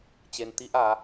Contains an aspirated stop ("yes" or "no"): no